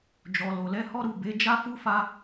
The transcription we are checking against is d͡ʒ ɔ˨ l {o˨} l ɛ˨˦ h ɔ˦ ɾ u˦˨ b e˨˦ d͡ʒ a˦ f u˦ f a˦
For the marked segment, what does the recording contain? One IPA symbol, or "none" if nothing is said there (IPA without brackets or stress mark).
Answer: o˨